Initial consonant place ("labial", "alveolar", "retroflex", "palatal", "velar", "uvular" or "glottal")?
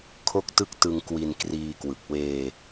velar